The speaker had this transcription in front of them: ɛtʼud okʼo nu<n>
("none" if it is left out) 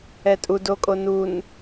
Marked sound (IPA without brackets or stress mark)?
n